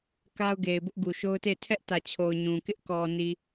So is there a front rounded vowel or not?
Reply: no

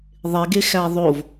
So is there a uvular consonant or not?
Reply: no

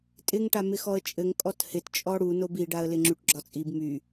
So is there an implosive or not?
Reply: no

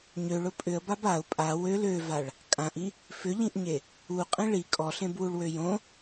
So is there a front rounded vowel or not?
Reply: yes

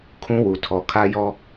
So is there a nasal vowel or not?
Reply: yes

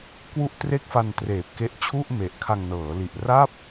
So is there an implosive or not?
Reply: no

